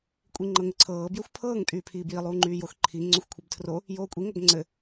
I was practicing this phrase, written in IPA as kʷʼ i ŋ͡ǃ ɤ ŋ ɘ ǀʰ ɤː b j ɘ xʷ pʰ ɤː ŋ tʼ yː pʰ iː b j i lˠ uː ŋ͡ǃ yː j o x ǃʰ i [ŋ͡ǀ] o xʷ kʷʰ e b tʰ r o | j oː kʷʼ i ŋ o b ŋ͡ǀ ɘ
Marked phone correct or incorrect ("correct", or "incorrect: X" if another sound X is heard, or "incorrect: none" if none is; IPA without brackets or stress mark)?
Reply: correct